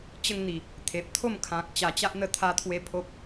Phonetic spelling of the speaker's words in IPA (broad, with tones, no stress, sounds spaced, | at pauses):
t͡ɕ ə˥˧ ŋ n̪ i˨˩ | t̪ʰ e˨ p̚ t̪ʰ o˥˧ m kʰ ã˨ k̚ t͡ɕ a˨˩ t͡ɕ a˦ ʔ n̪ ə˧ t̪ʰ a˦ t̪ʰ w e˦ pʰ o˦ p̚